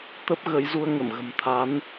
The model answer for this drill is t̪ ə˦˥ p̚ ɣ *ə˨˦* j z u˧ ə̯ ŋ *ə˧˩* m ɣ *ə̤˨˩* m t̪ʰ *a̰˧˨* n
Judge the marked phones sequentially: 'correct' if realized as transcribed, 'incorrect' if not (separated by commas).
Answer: correct, correct, correct, incorrect